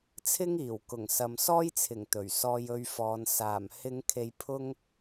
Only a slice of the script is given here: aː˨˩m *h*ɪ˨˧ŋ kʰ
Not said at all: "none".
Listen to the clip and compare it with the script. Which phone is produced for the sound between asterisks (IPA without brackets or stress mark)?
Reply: h